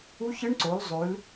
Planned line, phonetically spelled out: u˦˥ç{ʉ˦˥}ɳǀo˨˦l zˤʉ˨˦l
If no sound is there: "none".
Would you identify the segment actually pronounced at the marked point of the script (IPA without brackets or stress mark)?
ɨ˦˥